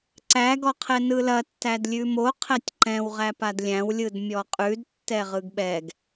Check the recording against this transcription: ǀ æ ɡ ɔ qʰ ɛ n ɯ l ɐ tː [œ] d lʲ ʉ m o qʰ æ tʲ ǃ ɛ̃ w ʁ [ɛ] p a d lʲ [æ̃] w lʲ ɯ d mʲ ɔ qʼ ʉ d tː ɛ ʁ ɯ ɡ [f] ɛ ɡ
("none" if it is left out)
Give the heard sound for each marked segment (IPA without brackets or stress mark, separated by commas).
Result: æ, æ, æ̃, ɓ